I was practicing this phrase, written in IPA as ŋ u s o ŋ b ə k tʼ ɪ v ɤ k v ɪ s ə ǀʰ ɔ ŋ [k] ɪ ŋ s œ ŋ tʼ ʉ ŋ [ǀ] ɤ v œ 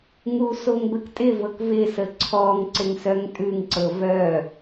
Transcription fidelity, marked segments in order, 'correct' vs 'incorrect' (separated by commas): incorrect, correct